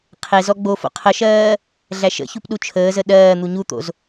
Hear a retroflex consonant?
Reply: no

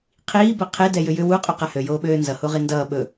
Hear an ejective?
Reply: yes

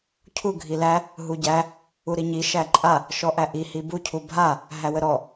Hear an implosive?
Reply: no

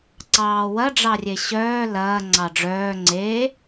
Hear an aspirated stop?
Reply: no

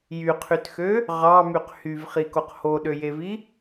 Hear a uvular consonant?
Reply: yes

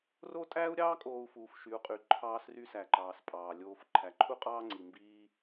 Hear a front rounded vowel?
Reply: yes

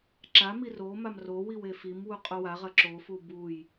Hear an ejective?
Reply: yes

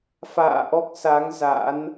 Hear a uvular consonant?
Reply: no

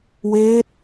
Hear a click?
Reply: no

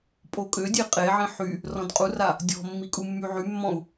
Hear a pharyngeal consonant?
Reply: yes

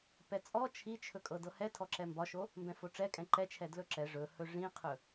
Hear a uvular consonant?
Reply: yes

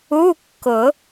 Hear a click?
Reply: no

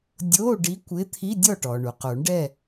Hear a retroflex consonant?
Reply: yes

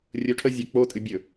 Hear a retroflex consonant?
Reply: yes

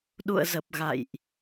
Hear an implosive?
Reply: yes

